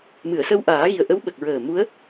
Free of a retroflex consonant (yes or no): yes